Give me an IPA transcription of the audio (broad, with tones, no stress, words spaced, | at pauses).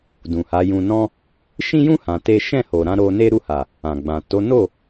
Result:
dũ˨ha˨˦jũ˧nɔ̃˦ | ʃĩ˦jũ˦ hã˧te˦ ʃɛ̃˦˨ho˨ɾã˧ ɾo˧ne˦ ɾu˦˨ha˨ | ã˨ɡ͡bã˨ to˨˦no˦˨